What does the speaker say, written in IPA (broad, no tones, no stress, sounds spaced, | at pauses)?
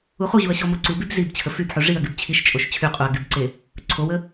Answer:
u χ u ʑ u ɐ̯ ɕ ɔ m o ǀ u b y b z i b t͡ɕʰ ə f y b ħ u ʐ i ɐ̯ ɡ y b t͡ɕʰ i ʃ t͡ʃʼ o ʃ t͡ɕʰ y qʼ u ɐ̯ ɡ y b ǀ e | ǀʰ o w ə